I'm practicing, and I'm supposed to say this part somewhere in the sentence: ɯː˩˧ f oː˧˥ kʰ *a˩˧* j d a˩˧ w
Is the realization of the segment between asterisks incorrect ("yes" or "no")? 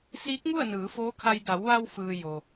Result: yes